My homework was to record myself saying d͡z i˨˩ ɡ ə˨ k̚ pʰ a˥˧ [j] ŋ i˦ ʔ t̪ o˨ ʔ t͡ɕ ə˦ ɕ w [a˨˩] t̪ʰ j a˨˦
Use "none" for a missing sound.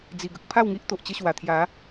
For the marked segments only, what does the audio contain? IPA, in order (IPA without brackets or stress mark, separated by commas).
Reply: w, a˨˩